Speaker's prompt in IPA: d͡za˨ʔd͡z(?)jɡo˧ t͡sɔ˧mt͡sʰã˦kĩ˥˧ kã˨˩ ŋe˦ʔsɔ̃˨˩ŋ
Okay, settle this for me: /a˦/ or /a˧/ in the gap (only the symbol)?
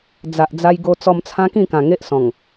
a˧